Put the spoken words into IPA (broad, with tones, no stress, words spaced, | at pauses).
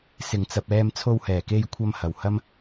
sɪ˨˩ŋt͡sɐ˨p̚ɛː˧m t͡sʰo˧whɛː˨˩ke˧jkʷʰɐ˧m hɐ˨˩whɐ˥m